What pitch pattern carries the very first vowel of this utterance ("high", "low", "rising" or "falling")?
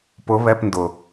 rising